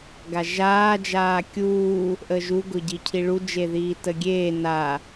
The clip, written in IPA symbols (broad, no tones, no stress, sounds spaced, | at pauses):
ɡ a ʒ aː d͡ʒ aː kʲ uː | ʔ ə ʒ u ɡ ʊ ɟ i cʰ i ɭ u d͡ʒ e ð iː t ə ɡʲ eː n a